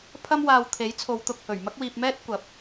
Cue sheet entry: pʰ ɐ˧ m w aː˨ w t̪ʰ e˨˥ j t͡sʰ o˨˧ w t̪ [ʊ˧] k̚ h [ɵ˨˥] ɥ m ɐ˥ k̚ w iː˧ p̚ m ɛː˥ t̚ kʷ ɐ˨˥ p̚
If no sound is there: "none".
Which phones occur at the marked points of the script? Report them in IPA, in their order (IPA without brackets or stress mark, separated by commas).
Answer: ʊ˨, ɵ˨˩